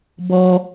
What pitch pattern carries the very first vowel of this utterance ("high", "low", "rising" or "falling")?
low